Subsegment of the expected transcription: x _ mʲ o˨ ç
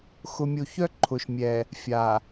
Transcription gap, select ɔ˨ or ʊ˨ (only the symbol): ʊ˨